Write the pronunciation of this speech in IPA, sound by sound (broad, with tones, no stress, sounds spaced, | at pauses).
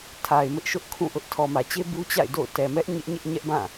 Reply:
tʰ a˨ ɪ̯ m ɪ˦ ʔ ʃ ʊ˦ ʔ kʰ ũ˦˨ ʔ ʊ˦ ʔ tʰ ɔ˨ m ä˨ t͡ɕ e˦ b u˦ t͡ɕ a̰˦˨ ɪ̯ d o̰˦˨ ʊ̯ t ɛ˨ m ɛ˦ ʔ ɲ ɪ˦ ʔ ɲ ɪ˦ ʔ ɲ ɛ˦ ʔ b ã˦˨